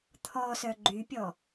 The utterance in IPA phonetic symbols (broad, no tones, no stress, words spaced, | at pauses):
t̪ʰɔ sœɡ͡ǃypʲɔ